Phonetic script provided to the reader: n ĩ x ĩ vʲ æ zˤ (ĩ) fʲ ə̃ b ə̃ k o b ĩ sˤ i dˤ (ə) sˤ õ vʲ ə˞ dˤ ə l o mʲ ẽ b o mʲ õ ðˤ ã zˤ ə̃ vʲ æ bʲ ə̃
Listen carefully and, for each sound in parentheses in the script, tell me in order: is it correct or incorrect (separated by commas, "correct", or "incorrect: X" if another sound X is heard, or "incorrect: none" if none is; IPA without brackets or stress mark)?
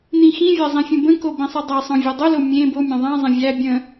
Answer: correct, incorrect: a